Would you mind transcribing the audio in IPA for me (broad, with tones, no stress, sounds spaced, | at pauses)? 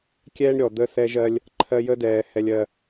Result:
kʲ ɛː˦ ɳ ɾʲ ɔ˨ d̪ ə˦ θ ɛ˦ ʒ ɜ˦ lʲ | ǃʰ ɜ˦ j ə˦ d ɛː˨ h ɛ˨ lʲ ɜ˨